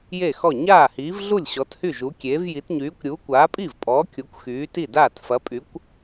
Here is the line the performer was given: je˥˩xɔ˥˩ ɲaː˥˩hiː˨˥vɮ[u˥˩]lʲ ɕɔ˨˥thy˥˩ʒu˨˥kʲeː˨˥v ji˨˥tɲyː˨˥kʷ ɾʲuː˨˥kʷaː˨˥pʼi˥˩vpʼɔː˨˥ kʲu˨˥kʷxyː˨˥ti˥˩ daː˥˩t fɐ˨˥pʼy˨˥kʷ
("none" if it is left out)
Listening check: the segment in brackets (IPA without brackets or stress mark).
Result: u˥˩